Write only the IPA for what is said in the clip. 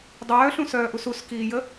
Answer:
dˤœːɬũsœːʔus uskiːjə

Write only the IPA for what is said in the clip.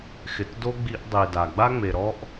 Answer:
xɪ˨tdo˦ ɡ͡bi˦ʔdˤi˨da˨ ɡ͡ba˦ŋ͡me˨ɾɔ˦ʔ

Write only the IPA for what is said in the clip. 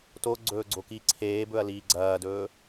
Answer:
toɡ͡ǀɵːɡ͡ǀoki ǀʰeːbɵɐ̯liː ɡ͡ǀɐːdɵː

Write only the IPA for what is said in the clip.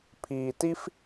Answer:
pʰiː˧ti˥f

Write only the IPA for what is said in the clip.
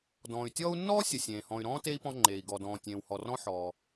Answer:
dɔ̃ː˩y̯ tʲɔː˦u̯nːɔː˥sʲə˩ sʲẽː˩hɔ̃˨y̯ɾɔ̃ː˥ te˥i̯pɔ̃˦ ŋ͡ǃeː˩i̯ ɡɔ˩dɔ̃ː˩ tʲẽː˨whɔ˨rɔ̃˥ ħɔː˩

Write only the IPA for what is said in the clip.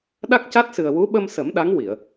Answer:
ɗa˦˥k̚ca˦˥t̚sɨ˨˩ə̯ wu˧˥ɓə˧msə˨˩˦m ɗa˧˥ŋwi˨˩˨ə̯

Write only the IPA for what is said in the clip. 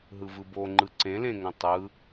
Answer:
ɦɯvɯbo ŋ͡ǃɯǀẽlẽŋõ tˤɯ

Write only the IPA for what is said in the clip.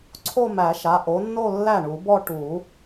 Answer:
ǀʰo˥˧mæ˨˩˦ʃa˩˧˩ ʔo˨˥nːo˥˧lːæ˥˩ ɳu˨˩˦ bɔ˥˧ ʈu˨˩˦

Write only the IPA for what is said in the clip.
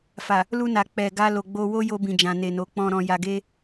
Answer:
fa˨ | lu˧na˨ k͡pɛ˨ɡa˧ lo˨ɡ͡bo˧wo˦ jo˧bĩ˨d͡ʒã˨ ne˨no˨˦k͡pɔ̃˧ ɾɔ̃˧ja˧ɡe˦

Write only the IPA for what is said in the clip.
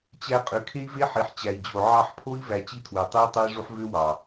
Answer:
t͡ɕæ˧ qʼø˨kʰe˦i̯ve˦ ħi˨ħt͡ɕæ˨i̯d͡ʑo˨ ʕɑ˧ħpʰo˦i̯ væ˧t͡ɕi˦tʰwø˨tˤy˦u̯ tˤu˦i̯ʐu˦ħ vø˦wɑ˨

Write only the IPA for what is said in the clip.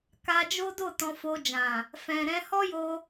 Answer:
ka˧d͡ʒo˦do˦˨ tɔ̃˧fo˧d͡ʒã˨ | fɛ̃˨ ɾɛ̃˧hɔ˦jo˧

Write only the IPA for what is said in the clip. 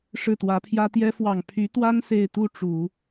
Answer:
ʂɻ̩˥˩t̪wä˧˥pʰjä˥ t̪jɛ˥ fwɑ˨˩ŋpʰy˧˥t̪wa˥n se˥˧ɪ̯ t̪u˥˩ʈ͡ʂu˨˩˦

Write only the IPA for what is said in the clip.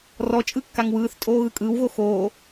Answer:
rɔt͡ʃʼɯ kːaŋwɯːθtʼoː ɣɯkʼɯːwɣo xoː

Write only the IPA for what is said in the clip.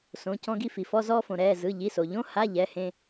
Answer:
sõ˩˧˩cɔ̃˧ɡi˧ fi˩fɔ˧˥˧ zɔː˧fõ˩ ɾɛː˩˧˩ zɯ˩˧˩ ʎi˩˧˩so˩ʎõ˧˥˧ ha˧˥˧ ʎɛ˩˧˩hẽ˧

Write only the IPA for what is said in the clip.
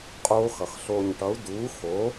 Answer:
qʼoː˧˥xʌ˩x ɬo˧˩ɲʈʌ˩˥u̯ duː˩˥xo˩˥

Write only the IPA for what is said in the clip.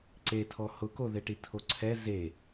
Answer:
ǀetʰɔ hʊkoðeʈi tʰoǀʰɛ ze

